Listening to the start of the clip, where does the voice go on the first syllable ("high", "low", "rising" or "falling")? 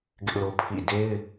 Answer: high